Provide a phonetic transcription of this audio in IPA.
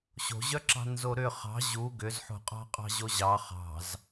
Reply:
ɕ o̤ ʑ œ ǁ ɑ̤ n z o ɾ ʏ χ ɑ̤ ʑ u ɡ ʏ z ħ o̤ qʼ ɑ̤ qʼ ɑ̤ ʑ o ʑ ɑ χ ɑ̤ z

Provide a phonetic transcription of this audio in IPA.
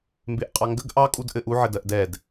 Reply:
m b e ʔ qʼ ɑ ŋ ɡ ə ɡ ʔ ɑ kʼ u d ʔ ɘ ʔ u ʕ ɘ d ɜ ʔ d ɛ d

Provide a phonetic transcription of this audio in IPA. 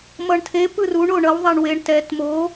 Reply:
m ʌ ɳ tʰ e p ɯ r u ɳ o ɳ ʌ w ðˤ a ɳ w e ɳ t ɛ t m o

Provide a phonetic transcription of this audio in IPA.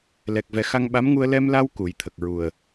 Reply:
l ɛ˨˩ k̚ v ɛ˨˩˦ x a˧ ŋ ɓ a˧˥ m ŋ u˧ ə̯ l ɛ˧ m l a˧ w k u˨˩˦ j t̪ʰ ə˨˩ k̚ ɹ u˨˩ ə̯

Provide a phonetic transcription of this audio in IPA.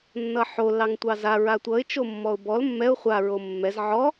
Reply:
nː ʌ ħ o l ɑ ŋ tʷ ɑ z a ɹ a tʷ ʌ ɪ̯ t͡ʃ o mː ɔ ʊ̯ b ɔ l mː ɛ ʊ̯ χʷ a ɹ o mː ɛ z ʕ ɔ

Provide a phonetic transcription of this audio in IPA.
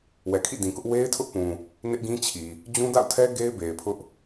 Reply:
w ɛ˨ kʰ ḭ˦˨ d ĩ˨ k ʊ˦ ʔ w e˦ ɪ̯ tʰ ʊ˦ ʔ p ũ˨ | n ɪ˦ ʔ ɡ ĩ˦ t͡ɕʰ i˨ | d͡ʑ ũ˦ d a̰˦˨ ʊ̯ tʰ ɛ˦ ɡ e˦ ɪ̯ b e˨ ɪ̯ pʰ ʊ˦ ʔ

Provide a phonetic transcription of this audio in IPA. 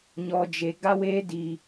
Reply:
ɲ ɔ˦ d͡ʒ e˦ ɡ a˦ w eː˦ d i˦

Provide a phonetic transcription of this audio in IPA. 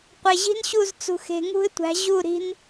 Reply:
qʷ e˨ ʑ i̤˦ n ɕ u˦˨ z t͡s ṳ˨ x e̤˨ ŋ ṳ˦ ɪ̯ tʷ æ̤˨˦ ʑ u˦˨ ɾ i̤˦ n

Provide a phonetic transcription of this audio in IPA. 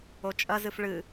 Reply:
o t͡ʃʼ ɐ z ɨ f ɭ ɨ

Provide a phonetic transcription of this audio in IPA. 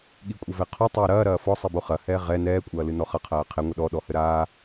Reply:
ɠ i kʷʼ ɘ v ɛ qʰ o tˤ ɛː ɾ ɐː ɾ ɐː f ɔ sˤ i b o χ ɐ h ɛː ʁ ɛ n ɛː kʷʼ ɐː l ɨ n ɔ χ ɐ qʰ ɐː qʰ ɛ ŋʷ ɘ ɗ ɔ ɗ ɔ h ɘ ɾ aː

